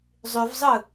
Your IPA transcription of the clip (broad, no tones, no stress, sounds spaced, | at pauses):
zˤ ʉ v zˤ ɯ